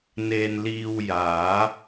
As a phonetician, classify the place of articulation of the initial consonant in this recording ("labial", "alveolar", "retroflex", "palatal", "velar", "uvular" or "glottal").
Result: alveolar